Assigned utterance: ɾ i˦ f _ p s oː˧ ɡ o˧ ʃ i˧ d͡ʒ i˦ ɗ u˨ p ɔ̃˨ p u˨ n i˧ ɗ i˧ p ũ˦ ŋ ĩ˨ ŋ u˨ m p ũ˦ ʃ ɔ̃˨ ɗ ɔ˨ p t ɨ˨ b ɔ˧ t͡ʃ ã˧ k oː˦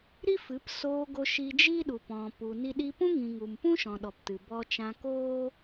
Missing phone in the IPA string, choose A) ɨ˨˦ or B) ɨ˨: A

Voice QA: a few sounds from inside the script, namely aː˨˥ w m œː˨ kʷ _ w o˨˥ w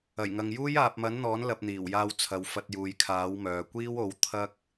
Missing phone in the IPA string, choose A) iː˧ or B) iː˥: B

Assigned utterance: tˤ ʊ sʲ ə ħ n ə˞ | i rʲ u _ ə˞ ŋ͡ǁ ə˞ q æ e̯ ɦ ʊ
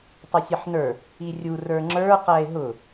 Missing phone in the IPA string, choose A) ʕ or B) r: B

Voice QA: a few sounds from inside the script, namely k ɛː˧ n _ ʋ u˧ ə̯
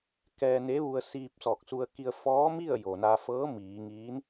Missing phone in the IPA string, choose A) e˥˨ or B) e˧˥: B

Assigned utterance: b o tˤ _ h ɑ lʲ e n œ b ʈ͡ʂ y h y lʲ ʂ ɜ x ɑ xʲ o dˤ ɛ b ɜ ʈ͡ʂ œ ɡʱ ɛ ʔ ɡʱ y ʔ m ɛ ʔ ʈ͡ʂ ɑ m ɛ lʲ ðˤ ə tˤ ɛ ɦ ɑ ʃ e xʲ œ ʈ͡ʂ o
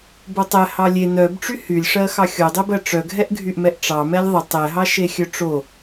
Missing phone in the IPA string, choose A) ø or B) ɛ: B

